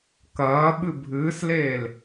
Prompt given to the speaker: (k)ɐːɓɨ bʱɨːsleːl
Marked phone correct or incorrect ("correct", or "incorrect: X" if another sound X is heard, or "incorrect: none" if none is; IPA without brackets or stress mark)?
correct